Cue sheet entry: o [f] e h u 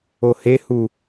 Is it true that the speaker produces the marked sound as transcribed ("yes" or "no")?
no